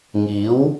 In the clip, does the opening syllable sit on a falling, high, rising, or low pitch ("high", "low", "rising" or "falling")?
rising